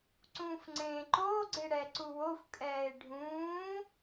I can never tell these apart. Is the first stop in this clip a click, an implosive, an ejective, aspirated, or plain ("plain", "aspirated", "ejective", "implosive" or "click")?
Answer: click